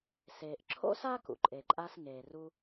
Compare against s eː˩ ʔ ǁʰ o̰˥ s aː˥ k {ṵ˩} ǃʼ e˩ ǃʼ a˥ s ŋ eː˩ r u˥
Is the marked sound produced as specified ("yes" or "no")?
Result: yes